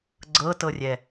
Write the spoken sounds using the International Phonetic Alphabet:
ɡ͡ǀ ɤ t ɤ rʲ ɛ

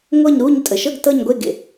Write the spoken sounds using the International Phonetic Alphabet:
ŋʷ ɤ˥˧ ɲ ɾ u˥˧ ɲ tʼ ə˨˩ ʃ ɤ˥˧ ɡ t ɤ˥˧ ɲ ɡʷ e˥˧ ɡ ḛ˨˩

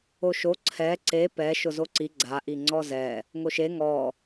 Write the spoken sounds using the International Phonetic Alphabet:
o ʃ o ǀʰ ɛ ǀ e p ɛ ʃ ʊ z o ǀ i ɡ͡ǀ a ʔ i ŋ͡ǀ ɔ z ɛ | ŋ o ʃ e ŋ ɔ

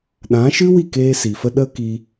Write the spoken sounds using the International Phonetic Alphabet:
ɗ ã˨˦ ʃ ɨ˦ w i˦˨ k eː˧ s i˨ f ə˧ ɗ ə˦ k i˧

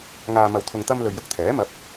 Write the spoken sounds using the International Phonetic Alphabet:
ŋ aː˧ m ɐ˧ w t̪ʰ ʊ˧ ŋ t̪ ɐ˧ m l ɵ˨ ɥ j ʊ˧ k̚ t̪ʰ ɛː˨˥ m ɐ˨˥ p̚

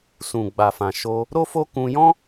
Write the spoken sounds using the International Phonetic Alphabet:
s ũ˨ ɡ͡b a˨ f ã˨ ʃ o˧ | ɾ o˦ f o˦ k ũ˧ j ɔ̃˦

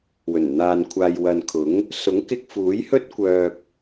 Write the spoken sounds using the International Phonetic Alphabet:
w ɵ˨˩ n n̪ aː˧ n kʷʰ aː˧ j w ɐ˨ n kʰ ʊ˨˥ ŋ | s ʊ˨˥ ŋ k ɪ˧ k̚ f uː˨˥ j h ɵ˥ t̚ kʷ œː˧ k̚

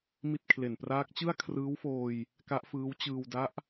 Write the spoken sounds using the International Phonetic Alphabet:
m i˥˩ t̚ kʰ l e˨˩ n p r aː˦˥ k̚ t͡ɕ ɯ˥˩ a̯ kʰ r ɯː˦˥ w f oː˧ j | k a˦˥ ʔ f ɯː˦˥ w t͡ɕ ɯː˧ w d a˦˥ ʔ

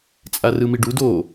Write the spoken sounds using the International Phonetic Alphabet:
t͡sʼ a r ɯ m i ɖ u d o

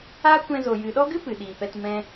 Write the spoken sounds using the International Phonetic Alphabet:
aː˦ kʷ ɛ̃˧ z o˨ j ɨ˨ ɗ ɔ˦ ɡ ɨ˦ p ɨ˨ ɗ iː˨ p ɛ˧ t m ɛ̃˧

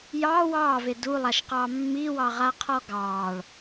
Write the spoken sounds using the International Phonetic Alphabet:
j ɑ w ɑː v e d u lˠ a ʃ q ɑ mː i w ɑ ʁ a qʰ ɔ ɡ ɑː ɭ

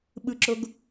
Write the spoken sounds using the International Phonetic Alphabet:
ɓ ɯ ǁ o ɡ

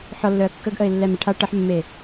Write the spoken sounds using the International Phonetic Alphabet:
ħ ɔ lː œ ə̯ kː ə ɡ ʔ ə ɪ̯ lː ɛ m ə ʈʰ a ʈ ə ħ mː e

